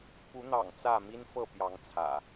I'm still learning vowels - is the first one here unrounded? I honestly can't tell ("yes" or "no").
no